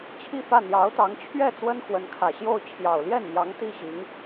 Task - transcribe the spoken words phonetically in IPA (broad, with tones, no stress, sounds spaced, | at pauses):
t͡ɕʰ i˥˧ f ä˥˩ n̪ j ɑ˧˥ ʊ̯ t̪ ɑ˧˥ ŋ t͡ɕʰ ɥ ɛ˥˩ t͡s w ə˥ n x w ə˧˥ n kʰ ä˨˩ ɕ j o˥˩ ʊ̯ t͡ɕʰ j ɑ˨˩ ʊ̯ l j ɛ˥˩ n m j ɑ˧˥ ŋ t̪ i˥˩ ɕ i˧˥ ŋ